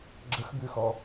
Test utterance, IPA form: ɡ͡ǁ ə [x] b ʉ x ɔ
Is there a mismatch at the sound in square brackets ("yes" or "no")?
no